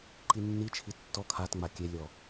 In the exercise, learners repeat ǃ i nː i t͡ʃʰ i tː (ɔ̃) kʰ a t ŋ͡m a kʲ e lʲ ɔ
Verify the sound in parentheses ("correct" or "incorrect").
incorrect